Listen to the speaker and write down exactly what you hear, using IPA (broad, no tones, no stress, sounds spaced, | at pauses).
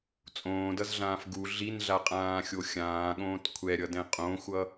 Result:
t͡sʼ õː d ʌ z ɮ ãː f ɡ u ɮ i n ɮ a qʼ ãː xʲ o xʲ ãː ɠ õː t kʷʰ ɛ ɾʲ ʌ d ɛ̃ qʼ õ xʷ ʌ